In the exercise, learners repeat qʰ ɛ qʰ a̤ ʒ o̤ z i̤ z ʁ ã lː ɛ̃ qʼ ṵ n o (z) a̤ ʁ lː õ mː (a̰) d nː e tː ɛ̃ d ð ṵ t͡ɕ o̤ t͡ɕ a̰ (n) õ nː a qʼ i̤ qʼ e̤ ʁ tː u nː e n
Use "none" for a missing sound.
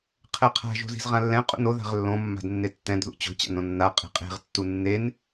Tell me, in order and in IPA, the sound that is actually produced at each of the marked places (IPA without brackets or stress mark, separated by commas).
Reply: ð, a̤, n